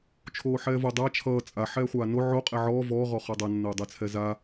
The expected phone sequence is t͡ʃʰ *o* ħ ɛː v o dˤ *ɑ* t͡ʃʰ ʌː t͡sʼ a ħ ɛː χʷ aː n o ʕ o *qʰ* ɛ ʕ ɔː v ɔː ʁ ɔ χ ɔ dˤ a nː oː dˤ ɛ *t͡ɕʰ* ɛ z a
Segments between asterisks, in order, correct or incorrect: incorrect: oː, incorrect: a, incorrect: qʼ, incorrect: t͡sʰ

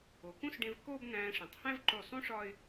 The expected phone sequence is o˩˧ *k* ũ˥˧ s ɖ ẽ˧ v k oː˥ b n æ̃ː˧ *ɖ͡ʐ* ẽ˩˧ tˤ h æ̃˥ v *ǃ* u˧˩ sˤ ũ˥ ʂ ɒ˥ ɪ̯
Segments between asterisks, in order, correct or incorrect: correct, incorrect: ʂ, correct

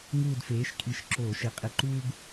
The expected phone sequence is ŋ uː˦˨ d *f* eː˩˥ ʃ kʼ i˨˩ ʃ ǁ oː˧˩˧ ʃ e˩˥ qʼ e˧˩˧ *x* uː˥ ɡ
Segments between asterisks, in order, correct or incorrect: correct, incorrect: ǃ

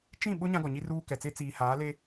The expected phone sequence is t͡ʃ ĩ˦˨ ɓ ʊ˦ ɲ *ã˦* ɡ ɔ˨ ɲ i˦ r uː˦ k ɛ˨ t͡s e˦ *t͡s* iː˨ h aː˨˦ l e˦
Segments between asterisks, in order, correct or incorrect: correct, correct

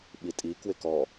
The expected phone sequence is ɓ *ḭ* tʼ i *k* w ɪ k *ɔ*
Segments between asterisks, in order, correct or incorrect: incorrect: i, correct, correct

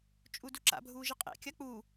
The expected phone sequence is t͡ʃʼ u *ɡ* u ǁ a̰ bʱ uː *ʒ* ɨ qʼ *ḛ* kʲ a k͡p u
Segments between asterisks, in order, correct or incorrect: incorrect: d, correct, correct

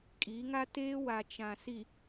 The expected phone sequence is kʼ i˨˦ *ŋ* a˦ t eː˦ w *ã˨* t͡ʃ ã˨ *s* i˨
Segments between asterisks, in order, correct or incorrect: correct, incorrect: a˨, correct

